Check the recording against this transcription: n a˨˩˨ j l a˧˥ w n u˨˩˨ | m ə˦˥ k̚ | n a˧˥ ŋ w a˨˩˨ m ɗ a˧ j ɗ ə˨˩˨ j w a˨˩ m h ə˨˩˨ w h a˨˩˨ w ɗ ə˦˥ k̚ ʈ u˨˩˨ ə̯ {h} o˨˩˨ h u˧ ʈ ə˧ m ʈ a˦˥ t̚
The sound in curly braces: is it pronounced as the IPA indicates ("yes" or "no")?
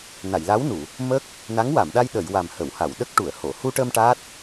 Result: yes